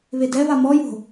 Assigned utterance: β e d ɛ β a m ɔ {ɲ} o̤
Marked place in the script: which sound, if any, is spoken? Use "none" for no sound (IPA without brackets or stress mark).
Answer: j